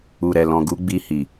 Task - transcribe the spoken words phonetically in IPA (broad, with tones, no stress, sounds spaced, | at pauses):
u˨ ɾ ɛ˨ l ɔ̃˨ ɡ u˨˦ ɡ͡b i˧ h i˨